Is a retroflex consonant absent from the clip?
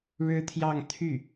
no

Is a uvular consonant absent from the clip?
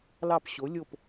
yes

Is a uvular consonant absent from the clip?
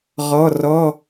no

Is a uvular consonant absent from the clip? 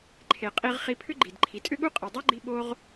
no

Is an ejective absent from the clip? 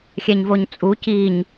no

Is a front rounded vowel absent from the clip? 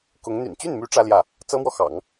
no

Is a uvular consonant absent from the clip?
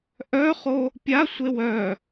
no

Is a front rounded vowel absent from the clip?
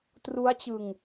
yes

